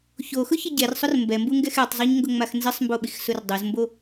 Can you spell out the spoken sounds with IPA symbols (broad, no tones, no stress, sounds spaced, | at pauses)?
ç o x ʊ ç ɪ ɟ ɛ r sˤ ʊ r m b ɛ m b u ŋ ɡ ɛ x ɛ tˤ zˤ o ɲ ŋ ɡ ʊ ŋ͡m a x n z ɪ sˤ m b o ɓ i x s ʊ r dˤ ʊ z m b o